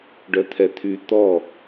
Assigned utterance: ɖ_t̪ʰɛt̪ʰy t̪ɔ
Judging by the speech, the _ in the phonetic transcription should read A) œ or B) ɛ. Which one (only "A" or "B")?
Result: A